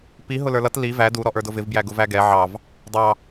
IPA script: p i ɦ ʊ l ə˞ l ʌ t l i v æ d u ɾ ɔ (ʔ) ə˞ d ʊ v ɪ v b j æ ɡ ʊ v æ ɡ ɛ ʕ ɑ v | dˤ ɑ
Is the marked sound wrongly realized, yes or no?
no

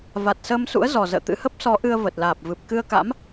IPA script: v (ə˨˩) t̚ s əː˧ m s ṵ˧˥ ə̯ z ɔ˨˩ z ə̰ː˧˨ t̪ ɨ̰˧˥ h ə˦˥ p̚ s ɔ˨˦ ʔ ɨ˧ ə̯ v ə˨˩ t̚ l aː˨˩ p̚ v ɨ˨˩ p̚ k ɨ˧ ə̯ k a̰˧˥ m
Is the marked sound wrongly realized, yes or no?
yes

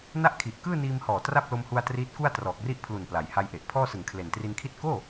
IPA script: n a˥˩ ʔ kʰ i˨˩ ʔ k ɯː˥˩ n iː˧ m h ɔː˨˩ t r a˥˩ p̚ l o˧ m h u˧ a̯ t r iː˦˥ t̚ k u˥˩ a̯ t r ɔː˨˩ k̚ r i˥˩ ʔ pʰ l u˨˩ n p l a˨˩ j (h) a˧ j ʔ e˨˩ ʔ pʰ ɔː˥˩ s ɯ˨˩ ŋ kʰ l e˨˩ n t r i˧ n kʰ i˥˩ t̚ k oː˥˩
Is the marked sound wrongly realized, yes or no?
no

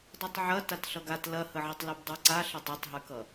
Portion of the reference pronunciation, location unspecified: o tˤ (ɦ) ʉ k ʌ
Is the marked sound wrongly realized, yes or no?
no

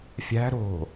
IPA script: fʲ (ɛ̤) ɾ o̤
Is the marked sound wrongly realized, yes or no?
yes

